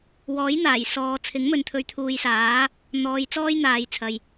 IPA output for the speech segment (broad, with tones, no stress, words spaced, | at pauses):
wɔː˨˥jn̪aː˨˩j sɔː˨ t͡sʰɪ˨˥ŋmɵ˨n t̪ʰɵ˨˧ɥt̪ʰuː˨jsaː˨˥ | n̪ɔː˨˧jt͡sɔː˥j n̪aː˨jt͡sʰɐ˨j